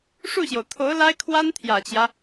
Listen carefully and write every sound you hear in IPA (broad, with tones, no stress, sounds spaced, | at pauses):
ʂ u˥˩ ɕ j o˩ ʊ̯ t̪ʰ o˧˥ ʊ̯ l a˥ ɪ̯ kʰ w a˥ n t̪ʰ j ä˨˩ t͡ɕ j ä˦